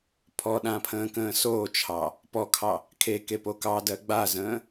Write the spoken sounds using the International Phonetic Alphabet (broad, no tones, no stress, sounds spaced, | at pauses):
pʰ ɔ ɗ ã pʰ ə̃ː k ə̃ː s oː t͡ʃʰ ɑ | p ɔ kʰ ɑ | kʰ e k e p o k ɑ d ɜ ɡ͡b a z ə̃ː